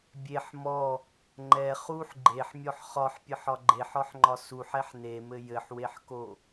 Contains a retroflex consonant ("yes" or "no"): no